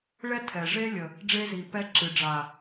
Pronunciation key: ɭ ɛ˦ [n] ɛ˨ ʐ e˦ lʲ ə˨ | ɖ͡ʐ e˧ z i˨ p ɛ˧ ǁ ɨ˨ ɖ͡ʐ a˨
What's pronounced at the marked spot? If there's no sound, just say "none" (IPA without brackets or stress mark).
tʰ